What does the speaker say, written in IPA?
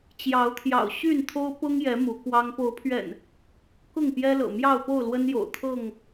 t͡ɕ j ɑ˨˦ ʊ̯ t̪ʰ j ɑ̰˨˩ ʊ̯ ɕ y˥˨ n t̪ʰ o˦ ʊ̯ p ʊ˦ ŋ j ɛ˨˦ m u˨˦ k w ɑ˦ ŋ p o˨˦ ʊ̯ pʰ ɥ ɛ̰˨˩ n | k ʊ˥˨ ŋ p j ɛ˦ l ɤ̰˨˩ m j ɑ˥˨ ʊ̯ p o˥˨ ʊ̯ l w ə˦ n j o̰˨˩ ʊ̯ t̪ʰ ɤ˥˨ ŋ

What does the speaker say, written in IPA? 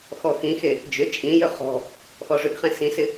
x ɔ x ĩ x e | d͡ʒ ʏ t͡ʃʼ ĩ j ʏ χ ɔ̤ | x ɔ ʐ ʏ ɡ χ ẽ s ĩ s ɪ

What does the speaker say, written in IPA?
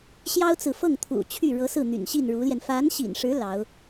ɕ j ɑ˥ ʊ̯ t͡s ɹ̩˨ f ɤ˥˩ ŋ t̪ʰ ṵ˨˩ t͡ɕʰ y˥˩ ɻ ɤ˧˥ s ɹ̩˥˩ n̪ y̰˨˩ n ɕ i˥˩ n ɻ u˧˥ l j ɛ˧ n f a˧˥ n ɕ ḭ˨˩ n ʂ ɻ̩˧˥ l ɑ˧˥ ʊ̯

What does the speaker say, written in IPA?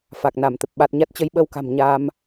f a˨˩ k̚ n a˧˩ m t̪ ə˨˩ p̚ ɓ a˨˩ t̚ ɲ a˦˥ t̚ t͡ɕ ə˨˦ j ɓ ə˧ w k a̤˨˩ m ɲ a˧ m

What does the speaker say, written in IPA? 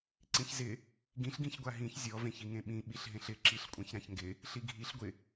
ǀ ĩ ç z ɪ | ɡ ĩ ɬ ɡ ĩ ç ɡʷ a ɦ ĩ ç zʲ ɔ v ẽ ç i ŋ ẽ ɓ ĩ ɓ i ɬ ɦ ẽ ɬ ɪ ǁ i ɬ kʷʼ ã ç ɾ ã ç ŋ ɡ ɪ | ɬ i ɡʱ i ɬ ɡʷ ɪ

